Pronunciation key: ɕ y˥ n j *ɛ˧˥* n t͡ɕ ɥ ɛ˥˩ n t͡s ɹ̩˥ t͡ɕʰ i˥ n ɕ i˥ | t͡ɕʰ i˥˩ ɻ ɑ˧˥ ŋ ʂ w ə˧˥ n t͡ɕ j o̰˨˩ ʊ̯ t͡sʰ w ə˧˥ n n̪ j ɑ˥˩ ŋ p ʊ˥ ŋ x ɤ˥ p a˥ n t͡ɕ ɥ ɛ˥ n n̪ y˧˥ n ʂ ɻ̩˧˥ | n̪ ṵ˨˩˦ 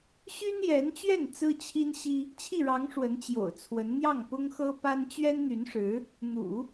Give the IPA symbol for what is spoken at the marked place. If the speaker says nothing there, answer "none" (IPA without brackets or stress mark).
ɛ˧˥